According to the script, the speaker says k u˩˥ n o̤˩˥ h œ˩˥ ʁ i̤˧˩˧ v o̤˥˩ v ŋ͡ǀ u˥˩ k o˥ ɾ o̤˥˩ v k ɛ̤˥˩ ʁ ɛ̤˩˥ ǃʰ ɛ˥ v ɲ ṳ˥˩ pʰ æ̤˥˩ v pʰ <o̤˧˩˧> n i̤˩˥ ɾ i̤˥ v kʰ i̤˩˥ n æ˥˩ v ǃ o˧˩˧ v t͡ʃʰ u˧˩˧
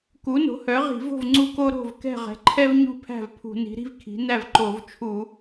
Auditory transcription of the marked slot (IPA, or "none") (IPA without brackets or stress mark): ṳ˧˩˧